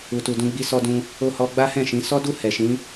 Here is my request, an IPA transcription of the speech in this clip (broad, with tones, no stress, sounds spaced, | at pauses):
u˨ t u˨ d ũ˧ ɡ͡b i˧ s ɔ˧ d ũ˧ | o˧ h ɔ˧ ɡ͡b a˦ h ɛ̃˦˨ ʃ ĩ˨˦ s ɔ˦ d u˦˨ h ɛ˨ ʃ ĩ˨˦